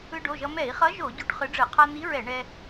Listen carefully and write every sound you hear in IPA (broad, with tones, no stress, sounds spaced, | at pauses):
ɯ˧ ɖ o˩˧˩ ʒ ʌ˧ m ɛ˧˩˧ i̯ χ ʌ˨˥ ʒ o˧˩˧ ɟ o˧ ʈ χ ɯ˨˥ ɖ͡ʐ ɯ˧˩˧ qʰ a˧ n̪ i˨˥ ɹ ɛ˧˩˧ ɳ ɛ˧